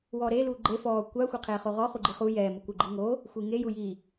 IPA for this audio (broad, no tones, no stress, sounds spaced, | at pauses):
w ɔː ɾ eː l uː ɡ͡ǃ e f ɔː kʷ a xʷ e qʰ eː χ o ʁ ɔ χ u ɡ͡ǃ i χ u j ɛ m u kʷ ɪ ɡ͡ǃ i ŋ o | xʷ i ŋ e j u j i